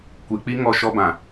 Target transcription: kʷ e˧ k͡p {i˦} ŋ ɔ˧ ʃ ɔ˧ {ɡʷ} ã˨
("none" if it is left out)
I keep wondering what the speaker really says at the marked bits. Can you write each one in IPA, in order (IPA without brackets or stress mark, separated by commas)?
i˦, b